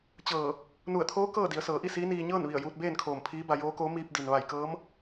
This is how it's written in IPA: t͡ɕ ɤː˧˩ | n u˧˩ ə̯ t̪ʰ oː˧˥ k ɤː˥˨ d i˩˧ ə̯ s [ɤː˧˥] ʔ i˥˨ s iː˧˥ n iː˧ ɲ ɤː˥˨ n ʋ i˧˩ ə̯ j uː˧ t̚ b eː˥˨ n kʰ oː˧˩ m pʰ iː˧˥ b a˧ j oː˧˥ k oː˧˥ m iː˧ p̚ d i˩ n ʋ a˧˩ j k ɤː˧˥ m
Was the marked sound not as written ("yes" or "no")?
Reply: yes